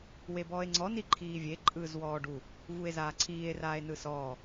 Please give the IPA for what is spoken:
w e b ɔː e̯ ŋ͡ǀ ɔ n i ǃʰ iː vʲ e ǃʼ ɯː z w ɔː ɖ u | v u e̯ z aː ǀʰ iː e̯ r aː e̯ n ɯ s ɔː

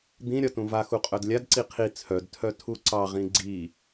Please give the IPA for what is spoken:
d̪ ĩ ɾʲ ɒ t ũ v a x u qʼ œ d lʲ a d ǀ i qʰ i t͡sʰ œ d tʰ œ tʰ u ǀ ɑ ʁ ĩ ɡ͡ǀ i

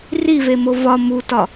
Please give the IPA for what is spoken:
r i v e m o v ɒ m u t ɒ

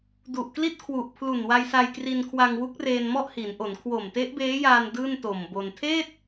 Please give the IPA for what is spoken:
d u˨˩ ʔ k l i˥˩ t̚ kʰ w u˨˩ ʔ pʰ l u˨˩ n w a˧ j s a˧ j k r i˧ n kʰ w a˧ ŋ w u˦˥ k̚ r eː˧ n m ɔ˥˩ ʔ h i˩˦ n ʔ o˩˦ n kʰ w o˨˩ m t e˦˥ ʔ b eː˦˥ j aː˧ n d ɯː˥˩ n t o˨˩ m b o˧ n tʰ eː˥˩ t̚

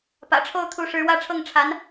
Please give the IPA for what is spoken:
p ä̰˨˩ ʈ͡ʂʰ o˥˩ ʊ̯ t̪ʰ u˧˥ ʂ ɻ̩˧˥ w ä˥˧ ʈ͡ʂʰ ɤ˥˩ ŋ ʈ͡ʂʰ a˧˥ n

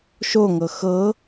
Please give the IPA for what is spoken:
ʃ o ŋ ɤ x ɤ

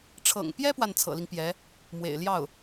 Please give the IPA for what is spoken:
ʈ͡ʂʰ ɤ̰˨˩ ŋ p j ɛ˥ p w a˥˩ n t͡sʰ ɤ̰˨˩ l i˦ ŋ p j ɛ˧˥ | m w ḛ˨˩ ɪ̯ l j ɑ˥˩ ʊ̯

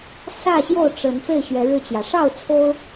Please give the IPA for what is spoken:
s ä˥˨ ɕ j o˥˨ ʊ̯ ʈ͡ʂ ə˨˦ n f e˥˨ ɪ̯ ɕ ɥ ɛ˨˦ ɻ ɻ̩˧ t͡ɕ j ä˩ ʂ ɑ˥˨ ʊ̯ t͡sʰ o˦ ʊ̯

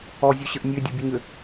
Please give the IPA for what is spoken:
ɔ zʲ o ɕ ə ʔ nʲ ø dʲ ɔ bʲ ø ɲ ø

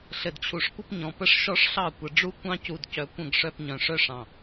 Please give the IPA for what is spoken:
ɬ ɘ˨ d t͡ɕʰ u˨ ʂ kʷ ə˦ p ɲ ɔ̃˨ p ə˦ ʂ ʃ ɔ˦ ʂ ɬ ɑ˦˨ kʷ ə˨ ɖ͡ʐ u˦ kʷ ɑ̃˦ c u˨ d c œ˨ kʷ ə̃˦˨ ɡ ʂ œ˦ p ɲ œ̃˨ ʂ œ˦ ʂ ɑ̃˨

